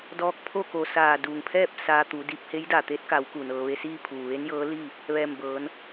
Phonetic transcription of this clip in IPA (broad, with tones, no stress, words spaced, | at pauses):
dɔː˧˥k̚pʰo˥˨ko˧˩ saː˧˩duː˩ŋpʰɛː˥˨p̚ saː˧t̪u˩˧di˧p̚ he˧˥jdaː˩t̪eː˧˥t̚ka˩˧w ku˩nɤː˧ʋe˥˨ siː˥˨pʰuː˩ʋe˧˥njɤː˧˥ li˥˨ | ʋɛː˧˩mbɤː˩˧n